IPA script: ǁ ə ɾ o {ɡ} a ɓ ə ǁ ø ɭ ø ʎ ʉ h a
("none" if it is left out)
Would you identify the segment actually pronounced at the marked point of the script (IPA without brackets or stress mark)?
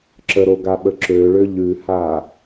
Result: ɡ